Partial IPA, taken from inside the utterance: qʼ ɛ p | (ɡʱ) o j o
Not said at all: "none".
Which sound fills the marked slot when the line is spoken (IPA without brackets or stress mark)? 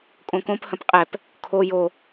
kʰ